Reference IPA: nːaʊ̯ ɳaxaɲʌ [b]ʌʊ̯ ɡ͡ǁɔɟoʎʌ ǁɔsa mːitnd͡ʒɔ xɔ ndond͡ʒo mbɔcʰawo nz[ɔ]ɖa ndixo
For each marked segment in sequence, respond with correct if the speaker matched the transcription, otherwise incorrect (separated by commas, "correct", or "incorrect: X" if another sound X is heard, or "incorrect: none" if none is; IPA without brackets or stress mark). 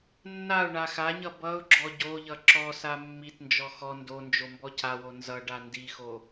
correct, incorrect: ʌ